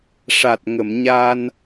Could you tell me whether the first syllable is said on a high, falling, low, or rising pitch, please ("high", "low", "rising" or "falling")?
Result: low